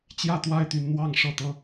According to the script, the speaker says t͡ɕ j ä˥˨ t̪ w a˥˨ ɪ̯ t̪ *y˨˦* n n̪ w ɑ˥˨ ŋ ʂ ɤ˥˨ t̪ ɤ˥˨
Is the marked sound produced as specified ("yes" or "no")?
yes